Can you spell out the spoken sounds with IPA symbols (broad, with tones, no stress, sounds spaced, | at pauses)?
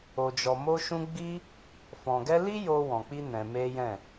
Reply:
o˧ d͡ʒ ɔ˧ m o˦ ʃ ũ˦ ɡ͡b i˦ | f ɔ̃˧ ɡ ɛ˦ l i˦ j o˧ w ɔ̃˨ k͡p i˧ n ɛ̃˧ m e˦ j ɛ̃˦˨